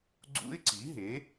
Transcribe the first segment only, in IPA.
ɡ͡ǀ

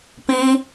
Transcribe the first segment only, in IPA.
p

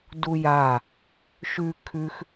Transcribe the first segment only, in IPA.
d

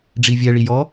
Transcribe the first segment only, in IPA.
ɖ͡ʐ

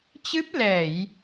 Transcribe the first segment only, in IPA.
t͡ɕ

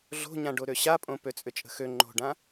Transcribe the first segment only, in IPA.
ɮ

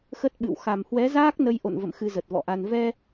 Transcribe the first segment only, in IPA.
x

